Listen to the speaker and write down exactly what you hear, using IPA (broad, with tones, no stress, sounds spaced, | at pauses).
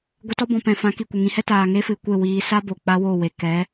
ɡʷ ə˧ t ɔ˦ b ɔ̃˨ p ɛ̃˨ f ã˨˦ k i˨ kʷ ə˨ ŋ ĩ˧ h ɛ˦ t aː˨ ŋ e˦ f ɨ˨ kʷ e˦˨ w iː˧ s a˦ b o˨ k͡p a˦ w o˦˨ w e˨ k ɛ˨˦